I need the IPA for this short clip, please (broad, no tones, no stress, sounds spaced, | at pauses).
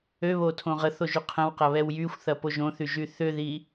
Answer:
ø β o tʰ õ ʁ ə θ o ʒ y qʰ ə̃ w q ɐ β ɛ w j y xʷ θ ɐ p o ʒ õ θ y ʒ y θ ʏ ð i